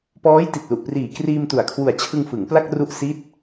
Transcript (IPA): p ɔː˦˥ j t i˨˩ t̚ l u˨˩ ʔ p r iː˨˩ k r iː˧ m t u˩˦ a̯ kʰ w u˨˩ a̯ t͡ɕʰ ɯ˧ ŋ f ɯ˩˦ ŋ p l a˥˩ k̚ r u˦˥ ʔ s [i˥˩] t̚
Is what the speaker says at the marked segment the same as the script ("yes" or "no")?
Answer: yes